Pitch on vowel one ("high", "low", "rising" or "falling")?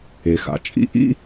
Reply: low